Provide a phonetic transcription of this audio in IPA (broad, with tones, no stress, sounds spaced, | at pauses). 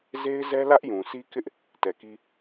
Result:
z e˦ ɪ̯ z ɛ˦ l ä˦ ʔ j ũ˨ sʰ i˦ k ɪ˦ ʔ | t ɛ˨ k i˦